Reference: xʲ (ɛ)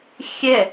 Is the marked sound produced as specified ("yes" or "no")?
yes